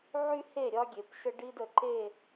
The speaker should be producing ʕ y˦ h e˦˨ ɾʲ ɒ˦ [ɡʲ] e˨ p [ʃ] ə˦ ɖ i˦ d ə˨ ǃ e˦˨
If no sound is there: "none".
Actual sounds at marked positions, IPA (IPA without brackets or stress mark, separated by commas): ɡʲ, ʃ